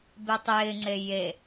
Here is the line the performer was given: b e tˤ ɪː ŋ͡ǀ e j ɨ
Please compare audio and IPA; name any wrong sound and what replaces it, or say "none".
ɨ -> e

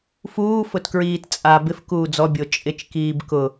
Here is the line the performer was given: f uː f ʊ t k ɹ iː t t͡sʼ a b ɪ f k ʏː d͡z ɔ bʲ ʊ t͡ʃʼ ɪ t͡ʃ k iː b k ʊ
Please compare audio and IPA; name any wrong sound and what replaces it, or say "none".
ʏː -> uː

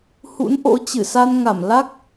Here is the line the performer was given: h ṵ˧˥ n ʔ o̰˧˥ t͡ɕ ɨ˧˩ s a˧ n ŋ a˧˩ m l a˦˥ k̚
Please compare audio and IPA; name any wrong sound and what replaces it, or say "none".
none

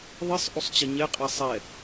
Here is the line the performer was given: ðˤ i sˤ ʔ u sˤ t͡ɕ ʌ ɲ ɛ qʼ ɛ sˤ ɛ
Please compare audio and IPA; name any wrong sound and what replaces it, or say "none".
none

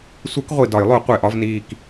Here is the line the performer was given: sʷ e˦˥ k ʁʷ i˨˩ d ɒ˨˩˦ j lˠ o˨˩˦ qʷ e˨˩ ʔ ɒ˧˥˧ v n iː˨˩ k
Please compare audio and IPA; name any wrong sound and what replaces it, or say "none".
none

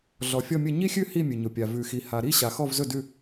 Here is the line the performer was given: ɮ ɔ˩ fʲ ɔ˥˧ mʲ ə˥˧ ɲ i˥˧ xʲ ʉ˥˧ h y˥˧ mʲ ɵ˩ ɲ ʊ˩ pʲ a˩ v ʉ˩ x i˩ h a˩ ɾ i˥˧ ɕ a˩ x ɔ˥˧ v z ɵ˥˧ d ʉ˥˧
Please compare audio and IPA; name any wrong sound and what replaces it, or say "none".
y˥˧ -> i˥˧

